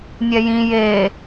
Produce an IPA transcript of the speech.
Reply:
nʲ ɛ j ĩ j e

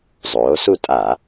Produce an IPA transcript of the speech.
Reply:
zˤ oː˩˧ s u˦˨ tʼ a˧˩˧

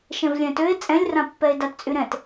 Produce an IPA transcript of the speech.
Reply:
ʃ ɛ̃ v lʲ ɛ̃ t ø e̯ t͡sʼ ɛ̃ lʲ r ã pː ɛ e̯ d a t t͡sʼ y ɾ ɛ̃ t

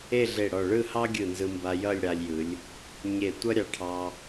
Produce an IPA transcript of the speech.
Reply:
e˥˧ ɮ e˧˩ ɽ ɔ˧˩ ɭ ɯ˥˧ h ɑ˥ ɡʲ ɯ˧˩ n z ɯ˧ m b a˧ j ʌ˥˧ lʲ ɽ a˧ lʲ j ɯ˩˧ lʲ | ɲ e˧˩ tʷ ʌ˥ ɾʲ ɑ˧ ʈʰ ɑ˧

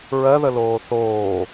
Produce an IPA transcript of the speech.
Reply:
ɹ ɜ ð ə l oː θ oː

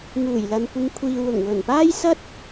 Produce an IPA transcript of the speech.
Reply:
ŋ uː˨˩ j l ɐ˨ n kʷ ɪ˨˧ ŋ kʷʰ iː˨ w ʊ˨˩ ŋ w ɵ˨˩ n p aː˥ j s ɐ˥ t̚

